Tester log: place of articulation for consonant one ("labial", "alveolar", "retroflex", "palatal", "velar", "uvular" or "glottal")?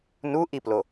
alveolar